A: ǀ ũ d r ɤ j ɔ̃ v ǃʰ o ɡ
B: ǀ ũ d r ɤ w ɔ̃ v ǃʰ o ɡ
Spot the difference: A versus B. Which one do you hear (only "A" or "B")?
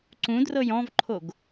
A